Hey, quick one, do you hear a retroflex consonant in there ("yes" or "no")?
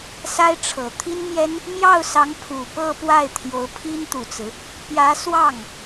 yes